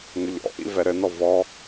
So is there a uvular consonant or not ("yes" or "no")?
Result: no